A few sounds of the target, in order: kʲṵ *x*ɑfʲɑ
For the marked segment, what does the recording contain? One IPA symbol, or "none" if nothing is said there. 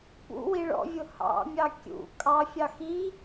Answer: kʼ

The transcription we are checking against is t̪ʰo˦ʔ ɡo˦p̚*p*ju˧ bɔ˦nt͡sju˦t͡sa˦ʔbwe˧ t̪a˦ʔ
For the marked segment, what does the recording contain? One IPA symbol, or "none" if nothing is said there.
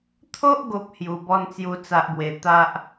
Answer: h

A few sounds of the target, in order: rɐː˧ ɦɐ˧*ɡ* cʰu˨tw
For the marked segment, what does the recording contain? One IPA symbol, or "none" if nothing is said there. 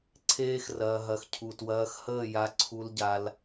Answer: x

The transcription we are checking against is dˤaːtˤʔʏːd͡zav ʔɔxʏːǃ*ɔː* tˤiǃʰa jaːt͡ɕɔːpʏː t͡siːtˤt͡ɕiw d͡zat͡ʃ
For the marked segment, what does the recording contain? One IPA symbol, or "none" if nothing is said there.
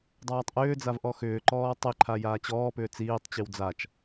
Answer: ɔː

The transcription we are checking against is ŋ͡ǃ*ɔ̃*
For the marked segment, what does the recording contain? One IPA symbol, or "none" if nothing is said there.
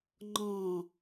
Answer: ɔ̃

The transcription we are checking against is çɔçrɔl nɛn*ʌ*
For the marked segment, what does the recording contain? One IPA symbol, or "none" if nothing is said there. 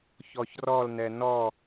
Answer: ɔ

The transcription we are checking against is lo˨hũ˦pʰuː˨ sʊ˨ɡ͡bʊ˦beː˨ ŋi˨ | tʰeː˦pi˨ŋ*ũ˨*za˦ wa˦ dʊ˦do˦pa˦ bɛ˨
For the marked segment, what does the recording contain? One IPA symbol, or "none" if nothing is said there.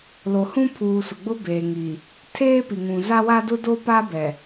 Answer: ũ˨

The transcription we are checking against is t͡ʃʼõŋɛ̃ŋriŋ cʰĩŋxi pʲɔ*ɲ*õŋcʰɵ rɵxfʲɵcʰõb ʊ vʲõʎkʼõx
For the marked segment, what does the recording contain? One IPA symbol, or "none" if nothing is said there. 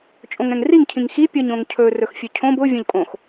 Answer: ɲ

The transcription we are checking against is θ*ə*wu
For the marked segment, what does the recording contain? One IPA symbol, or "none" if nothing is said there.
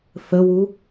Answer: ə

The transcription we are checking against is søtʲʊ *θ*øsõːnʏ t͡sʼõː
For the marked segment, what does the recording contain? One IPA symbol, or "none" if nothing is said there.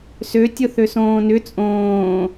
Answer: θ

